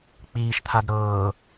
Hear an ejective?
no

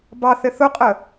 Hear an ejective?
yes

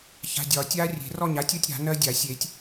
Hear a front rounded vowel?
no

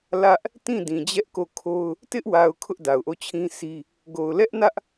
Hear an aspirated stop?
yes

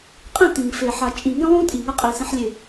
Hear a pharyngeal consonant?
yes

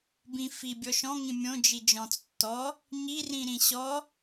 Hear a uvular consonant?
no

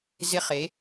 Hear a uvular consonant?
yes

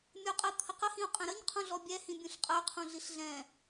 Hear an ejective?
yes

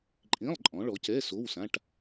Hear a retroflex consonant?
yes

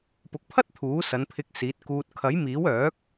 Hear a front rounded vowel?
yes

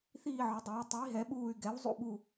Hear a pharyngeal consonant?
yes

